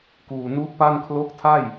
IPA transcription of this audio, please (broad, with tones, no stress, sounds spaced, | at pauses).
k uː˨˩ n u˦˥ ʔ p a˥˩ n kʰ l o˦˥ k̚ tʰ a˥˩ j